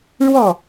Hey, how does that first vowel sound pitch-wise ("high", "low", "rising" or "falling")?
falling